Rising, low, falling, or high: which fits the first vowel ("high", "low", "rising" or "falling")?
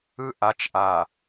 high